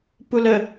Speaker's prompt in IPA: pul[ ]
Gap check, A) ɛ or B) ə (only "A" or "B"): B